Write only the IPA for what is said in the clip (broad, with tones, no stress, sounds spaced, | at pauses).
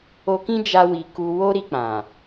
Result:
o˧ k ĩ˦ d͡ʒ a˧ w i˨ k u˧ w o˦ ɾ i˧ k͡p ã˨